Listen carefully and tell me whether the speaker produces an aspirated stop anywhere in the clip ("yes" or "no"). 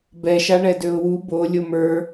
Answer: no